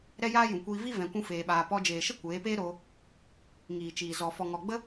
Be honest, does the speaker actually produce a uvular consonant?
no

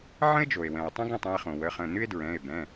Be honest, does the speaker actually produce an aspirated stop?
no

